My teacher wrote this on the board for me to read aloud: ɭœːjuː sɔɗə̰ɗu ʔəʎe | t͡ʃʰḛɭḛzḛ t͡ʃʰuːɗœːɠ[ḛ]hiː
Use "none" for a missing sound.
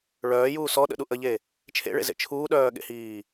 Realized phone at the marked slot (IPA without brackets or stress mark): ḛ